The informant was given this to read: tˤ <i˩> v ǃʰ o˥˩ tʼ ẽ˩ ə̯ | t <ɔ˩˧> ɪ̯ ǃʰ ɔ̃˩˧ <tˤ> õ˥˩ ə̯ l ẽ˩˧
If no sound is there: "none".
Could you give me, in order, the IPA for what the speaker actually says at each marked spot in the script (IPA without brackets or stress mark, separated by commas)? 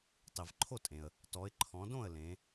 i˩, ɔ˩˧, d